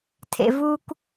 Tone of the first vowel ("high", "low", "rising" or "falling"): low